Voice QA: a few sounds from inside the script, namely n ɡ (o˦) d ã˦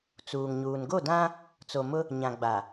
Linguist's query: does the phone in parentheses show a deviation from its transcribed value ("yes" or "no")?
yes